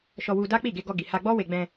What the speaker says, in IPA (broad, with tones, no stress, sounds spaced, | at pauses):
ʃ ɔ˧ w u˧ d a˦ k͡p i˦˨ ɡ e˧ ɡ ɔ˧ ɡ i˨ h a˧ ɡ͡b ɔ˦ w e˧ ɡ͡b ɛ̃˧